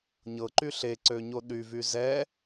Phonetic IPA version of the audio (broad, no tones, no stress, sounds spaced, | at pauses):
ɲ ɤ ǃ y ɬ e ǀ ø ɲ o ɗ y v y z ɛ